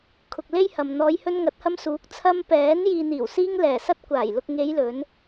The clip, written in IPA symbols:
kʰ ʊ˨ k̚ l e˥ j h ɐ˨ m n̪ ɔː˨˧ j h ɵ˧ n ŋ ɐ˨˥ t̚ h ɐ˧ m s uː˨˥ k̚ t͡sʰ ɐ˧ m p ɛː˨˥ n j iː˨ n̪ iː˨˩ w s iː˧ ŋ l ɛː˨˩ s ɐ˧ t̚ kʷ aː˨˩ j l ʊ˨ k̚ ŋ e˨˧ j l ɵ˨˧ n

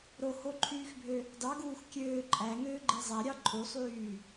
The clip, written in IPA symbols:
ɾ o h o ǃʰ yː x bʱ ø | d ɑ ɡ uː x kʲ øː ǃʼ æ ŋ øː ɡ͡ǃ i zˤ æ ɾʲ ɑ ǃʼ u sˤ yː

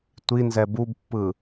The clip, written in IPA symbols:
tʷ i n z ɛ b u b pː ɯ

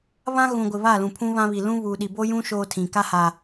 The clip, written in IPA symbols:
β ã˦ ɣ ũ˨ ɡʷ ɪ˨ β a˦˨ l ũ˨ pʰ ũ˦ β ã˦ β i˨ l ũ˦ β uː˨ ɗ i˨ b o˦ j ũ˦ ʃ oː˦ tʰ ĩ˨ k a˦ h a˨

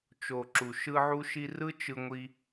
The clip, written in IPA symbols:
t͡ʃ o˨ ǁ u˨ ʃ ɯ˧ ʕ u˧ ʃ i˧ r ɯ˦ t͡ʃ ɯ˧ ŋʷ i˧

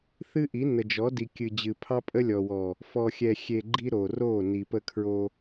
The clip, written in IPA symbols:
θ ɨ˦ ʔ i˨˦ n ə˨ d͡ʒ ɔ˨˦ d i˨ kʲ ɨ˨ d͡ʑ ɨ˨ pʰ ɑ˦ pʼ ə˦ lʲ ɔ˨ w ɔ˨ | f ɔ˨ xʲ ɛ˨ xʲ e˨ ɡ͡ǃ i˦ ɾ o˨ r o˦˨ n i˨ p ə˦ kʰ ɹ o˦

